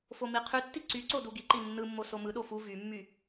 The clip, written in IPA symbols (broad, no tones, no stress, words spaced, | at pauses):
fomiqʰytːi ǀy ǀoduɡiǃi nːɯmːo somɯɗo fu vymːy